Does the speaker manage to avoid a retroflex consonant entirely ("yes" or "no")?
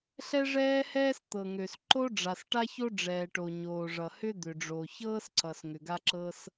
no